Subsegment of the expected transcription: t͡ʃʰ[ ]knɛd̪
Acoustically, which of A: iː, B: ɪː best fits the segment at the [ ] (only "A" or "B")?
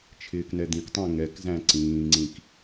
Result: B